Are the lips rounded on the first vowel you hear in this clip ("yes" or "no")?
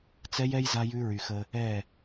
no